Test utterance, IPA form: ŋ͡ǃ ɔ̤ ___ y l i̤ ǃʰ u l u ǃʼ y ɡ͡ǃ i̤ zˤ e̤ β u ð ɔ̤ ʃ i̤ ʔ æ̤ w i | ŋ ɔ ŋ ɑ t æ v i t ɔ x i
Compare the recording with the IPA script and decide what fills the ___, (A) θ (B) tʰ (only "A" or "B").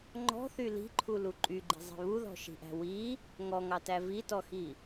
A